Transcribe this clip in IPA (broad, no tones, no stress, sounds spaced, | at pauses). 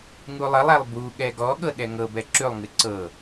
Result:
ŋ u lˠ ə lˠ æ lˠ b u ɠ ɛ ɡ ɔ ɠ ɤ ɗ ɛ ŋ ɤ b ɛ ǁ ʉ lˠ ŋ ɨ ǀ ɤ